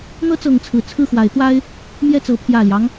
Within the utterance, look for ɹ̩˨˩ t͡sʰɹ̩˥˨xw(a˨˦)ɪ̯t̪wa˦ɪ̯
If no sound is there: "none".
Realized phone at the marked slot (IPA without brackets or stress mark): a˨˦